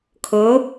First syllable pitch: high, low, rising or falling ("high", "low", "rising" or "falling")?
rising